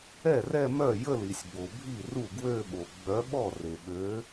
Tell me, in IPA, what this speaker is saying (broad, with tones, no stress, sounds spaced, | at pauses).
ɛ˥˩ r ɛ˥˧ m œ˥˩ j ə˥˩ l i˩ sʲ b o˩ bʱ i˥˩ r u˥˩ ɡ w ø˥˧ ɓ o˩ ɡ͡b œ˨˥ ɓ ɔ˥˩ r e˩ ɓ ø˨˥